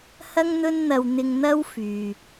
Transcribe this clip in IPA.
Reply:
h ɐ˥ ŋ n̪ ɵ˥ n n̪ ɐ˧ w n̪ ɪ˧ ŋ n̪ ɐ˥ w f yː˨

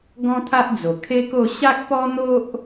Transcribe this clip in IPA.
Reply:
ɡ ɔ̃˦ t̪ʰ a˦ ʔ d͡z o˨˩ kʰ e˦ k o˥˧ ɕ a˦ k̚ p ɔ˦ n̪ o˦ ʔ

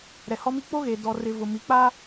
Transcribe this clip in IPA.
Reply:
ɾ ɛ˨ h ɔ˦ m i˦ k͡p o˦ ɣ e˨ d ɔ˨ r ɪ˨ v ʊ˨ m i˨ k͡p aː˦

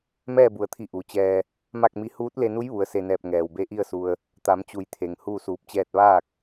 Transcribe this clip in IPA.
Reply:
m ɛː˥˨ b u˩ ə̯ t̪ʰ i˧˩ ʔ u˩ t͡ɕ ɛː˧ | m a˥˨ k̚ m i˧˥ h uː˧˥ t̚ l e˧ n u˧˥ j ʋ u˩˧ ə̯ s e˧˩ n ɛː˧˩ p̚ ŋ ɛː˩ w b e˧˥ ʔ i˥˨ ə̯ s u˧ ə̯ | t̪ a˩˧ m t͡ɕ u˩˧ j t̪ʰ e˩ ŋ h uː˥˨ s uː˧˩ p̚ t͡ɕ ɛː˥˨ t̚ ʋ aː˥˨ k̚

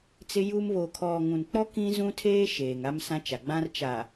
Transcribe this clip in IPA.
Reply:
t͡s ɪ˦ j u˦ m β o˨ kʰ ɔ˨ ŋ ũ˨ n k͡p ɔ˦ k ĩ˦ z ũ˦ tʰ eː˦ ʃ eː˨ ŋ a˦ m s ã˦ t͡ʃ a˨ ɡ͡b ã˦ r t͡ʃ a˨

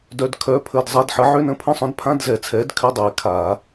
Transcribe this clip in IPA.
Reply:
d œ˧˥˧ d kʰ œ˧˥˧ pʰ ə˧˥˧ d zˤ a˧˥˧ d ħ ə˨˥ ʕ ʏ˧˥˧ n ə̃˧˥˧ pʰ ə̃˧˥˧ sˤ œ̃˨˥ d pʰ ã˧˥˧ d z ɛ˨˩˦ t͡sʰ ɛ˨˥ d kʰ ʏ˧˥˧ dˤ ɛ˨˩˦ kʰ a˨˩˦

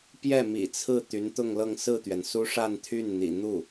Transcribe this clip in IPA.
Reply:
p j ɛ˥˩ m ḭ˨˩ t͡sʰ ɹ̩˥˩ t̪ y˧˥ n t̪ ʊ˥˧ ŋ l ɤ˥˧ ŋ s ɹ̩˥˩ t̪ ɥ ɛ˩ n s u˥ ʂ a˥˧ n t̪ʰ y˥˩ n n̪ ḭ˨˩ n̪ u˥˩

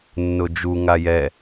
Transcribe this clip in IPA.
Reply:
nː ʊ d͡ʒ u ŋ a j ɛ

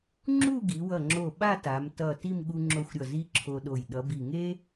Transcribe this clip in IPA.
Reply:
ŋ͡ǁ u˥˧ ɡ i˩˧ w ʌ˧˩ ŋ͡ǁ o˧˩ ɓ a˥˧ t a˩˧ m t ʌ˧˩ t i˥˧ m ɠ u˧ ŋ͡ǁ o˧ xʷ ɾʲ ʌ˧˩ z i˧ ǁʰ o˧ ɗ o˧˩ j ɗ ʌ˩˧ b i˧˩ ŋ e˥

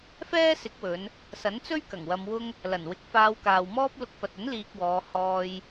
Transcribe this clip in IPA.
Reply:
f ɛː˥ s ɪ˨˥ k̚ w ɵ˨˧ n | s ɐ˨˥ n t͡s ɵ˥ ɥ k ɐ˨˩ ŋ w ɐ˧ m w ʊ˥ ŋ | l ɐ˨˩ n w ɪ˨˥ k̚ f aː˧ w k aː˨ w m ɔː˥ p̚ l ʊ˧ k̚ f ɐ˨ t̚ ɵ˨˥ n l iː˧ k̚ w ɔː˨˧ h ɔː˧ j

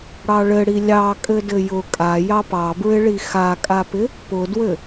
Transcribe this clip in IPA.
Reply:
ɽ ɑ ɭ ɘ ɽ i lʲ ɑ kʼ ɘ d ɘ j ʊ kʼ a j ɑ p ɑ b ɹ ɪ ɭ i x a kʼ a p ɪ | p ʊ d w ɘ

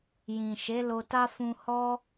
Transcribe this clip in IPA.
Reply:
j ĩ˨ ʃ e˨˦ l o˧ t a˦ f ũ˧ h ɔ˦

